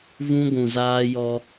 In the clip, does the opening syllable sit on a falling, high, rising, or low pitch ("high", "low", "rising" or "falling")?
high